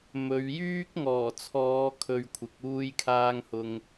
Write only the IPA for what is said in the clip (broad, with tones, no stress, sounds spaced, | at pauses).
m ɵ˨˧ ɥ j yː˥ k̚ ŋ ɔː˨˩ t͡sʰ ɔː˨˧ kʰ ɵ˨ ɥ kʷʰ ɪ˨˥ k̚ uː˥ j kʰ aː˥ ŋ h ʊ˧ ŋ